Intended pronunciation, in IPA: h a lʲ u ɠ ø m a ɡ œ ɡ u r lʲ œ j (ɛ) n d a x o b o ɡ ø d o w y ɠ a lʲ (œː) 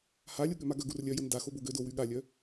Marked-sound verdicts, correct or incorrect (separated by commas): incorrect, incorrect